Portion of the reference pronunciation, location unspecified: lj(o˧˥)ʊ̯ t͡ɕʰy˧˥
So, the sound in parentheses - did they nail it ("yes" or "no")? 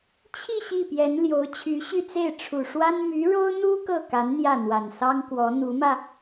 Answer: yes